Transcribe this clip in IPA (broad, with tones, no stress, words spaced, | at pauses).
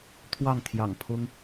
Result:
t̪ʰwɑ˥˨ŋ t̪ʰjɑ̰˨˩ŋ pʰʊ˦ŋ